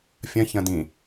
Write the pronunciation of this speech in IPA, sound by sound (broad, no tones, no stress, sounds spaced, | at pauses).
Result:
fʲ ɐ̃ ç ɐ̃ d ĩ